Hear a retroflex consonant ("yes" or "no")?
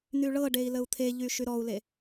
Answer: yes